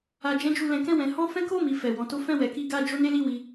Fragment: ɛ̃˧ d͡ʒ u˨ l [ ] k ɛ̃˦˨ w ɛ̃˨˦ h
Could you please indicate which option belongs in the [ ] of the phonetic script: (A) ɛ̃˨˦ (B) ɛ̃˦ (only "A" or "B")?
A